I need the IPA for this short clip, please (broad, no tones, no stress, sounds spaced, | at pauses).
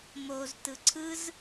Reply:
m o z t ɯ ǀʰ ɯ z